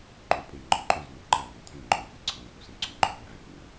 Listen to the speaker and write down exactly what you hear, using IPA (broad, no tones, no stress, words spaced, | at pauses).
ǃõpʼe ŋ͡ǃɔ̃ǃʼõz n̪oǃa wɔ̃t̪ʰõ ŋ͡ǃɔ̃rʲeǀʰɔ̃ kusẽǀɔ̃ŋ͡ǃɔː ɾa rʲõ